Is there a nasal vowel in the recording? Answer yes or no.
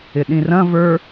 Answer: yes